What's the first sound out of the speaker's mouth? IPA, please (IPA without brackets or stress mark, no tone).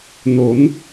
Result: n